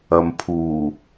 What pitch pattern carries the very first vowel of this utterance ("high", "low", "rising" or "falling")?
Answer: low